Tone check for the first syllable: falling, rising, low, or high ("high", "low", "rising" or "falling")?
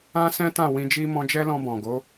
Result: high